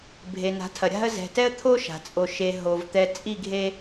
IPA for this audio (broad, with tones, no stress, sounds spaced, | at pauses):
bʱ e˨ n a̤˨˦ tʰ ɐ˨ ɾʲ a̤˦ ə̯ z ɛ̤˨ t ɛ˦ ə̯ t̪ʰ o˦ ʃ a̤˨ t͡sʼ o˨ ʃ e˨ ɦ o˨ v t̪ ɛ˨ t͡sʼ i˦˨ ɡʱ e˦